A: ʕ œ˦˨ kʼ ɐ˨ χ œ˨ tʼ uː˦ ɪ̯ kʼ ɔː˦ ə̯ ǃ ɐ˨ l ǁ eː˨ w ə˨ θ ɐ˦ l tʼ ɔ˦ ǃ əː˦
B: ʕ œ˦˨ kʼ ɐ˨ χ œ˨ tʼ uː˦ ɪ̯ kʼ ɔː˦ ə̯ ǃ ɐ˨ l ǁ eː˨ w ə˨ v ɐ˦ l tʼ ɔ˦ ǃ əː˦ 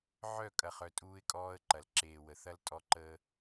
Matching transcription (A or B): A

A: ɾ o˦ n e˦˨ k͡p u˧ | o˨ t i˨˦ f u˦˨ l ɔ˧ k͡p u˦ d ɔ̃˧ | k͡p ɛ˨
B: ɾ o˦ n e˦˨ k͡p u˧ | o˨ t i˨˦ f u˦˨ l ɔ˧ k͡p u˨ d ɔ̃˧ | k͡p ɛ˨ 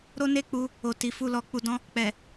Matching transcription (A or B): B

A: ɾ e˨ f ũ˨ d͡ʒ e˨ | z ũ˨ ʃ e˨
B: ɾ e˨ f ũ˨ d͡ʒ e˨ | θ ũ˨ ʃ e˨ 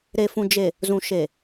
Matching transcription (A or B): A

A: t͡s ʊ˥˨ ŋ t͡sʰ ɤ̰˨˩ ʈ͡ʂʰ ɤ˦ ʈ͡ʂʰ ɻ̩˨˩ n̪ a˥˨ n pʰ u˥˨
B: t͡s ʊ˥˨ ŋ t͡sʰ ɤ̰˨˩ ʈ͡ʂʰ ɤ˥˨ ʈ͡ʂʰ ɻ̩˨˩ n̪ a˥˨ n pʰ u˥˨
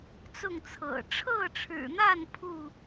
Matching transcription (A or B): B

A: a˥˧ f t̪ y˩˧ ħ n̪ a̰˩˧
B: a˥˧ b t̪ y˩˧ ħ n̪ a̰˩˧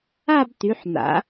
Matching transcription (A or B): B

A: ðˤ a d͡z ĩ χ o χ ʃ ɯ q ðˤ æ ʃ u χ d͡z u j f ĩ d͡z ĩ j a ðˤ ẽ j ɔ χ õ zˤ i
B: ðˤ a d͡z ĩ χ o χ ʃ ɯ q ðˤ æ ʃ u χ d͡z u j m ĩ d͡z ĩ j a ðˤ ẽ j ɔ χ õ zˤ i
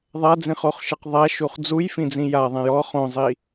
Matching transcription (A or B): A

